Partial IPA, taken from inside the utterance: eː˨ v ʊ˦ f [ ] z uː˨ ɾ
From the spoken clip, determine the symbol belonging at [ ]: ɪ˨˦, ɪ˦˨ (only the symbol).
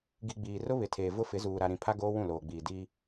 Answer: ɪ˨˦